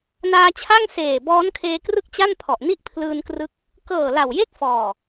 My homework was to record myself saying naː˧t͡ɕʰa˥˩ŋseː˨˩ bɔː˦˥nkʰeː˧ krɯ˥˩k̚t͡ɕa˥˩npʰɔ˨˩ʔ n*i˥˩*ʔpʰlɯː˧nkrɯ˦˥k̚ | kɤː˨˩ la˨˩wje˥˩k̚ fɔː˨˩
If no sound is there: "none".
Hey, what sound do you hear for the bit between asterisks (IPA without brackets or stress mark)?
i˥˩